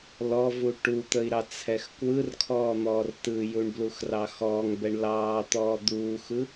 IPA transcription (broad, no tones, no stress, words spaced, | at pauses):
lɔvu ʈut̪əi̯ ɾɑt͡sʰɛxkwɯrkʰɔː n̪ɔːrtɯjuɳ bluxrɑxɔːŋbɛɳ lɑː t̪ɔːd̪uːxɯ